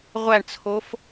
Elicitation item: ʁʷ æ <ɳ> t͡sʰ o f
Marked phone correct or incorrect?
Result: correct